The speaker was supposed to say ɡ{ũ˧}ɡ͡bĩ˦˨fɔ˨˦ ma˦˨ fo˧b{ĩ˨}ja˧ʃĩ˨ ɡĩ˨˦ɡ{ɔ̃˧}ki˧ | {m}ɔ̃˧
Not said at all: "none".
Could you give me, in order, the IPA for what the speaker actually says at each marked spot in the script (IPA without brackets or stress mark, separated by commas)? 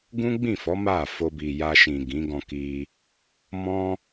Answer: ũ˦, i˨, ɔ̃˧, m